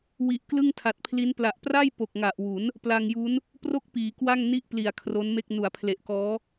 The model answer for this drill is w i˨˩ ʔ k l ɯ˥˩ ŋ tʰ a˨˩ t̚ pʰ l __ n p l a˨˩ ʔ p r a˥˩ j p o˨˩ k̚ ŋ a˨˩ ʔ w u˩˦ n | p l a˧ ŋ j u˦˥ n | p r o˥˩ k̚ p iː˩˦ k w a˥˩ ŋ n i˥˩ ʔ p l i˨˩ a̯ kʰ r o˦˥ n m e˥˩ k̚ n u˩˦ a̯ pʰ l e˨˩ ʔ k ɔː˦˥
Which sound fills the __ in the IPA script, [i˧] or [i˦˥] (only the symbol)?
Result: i˦˥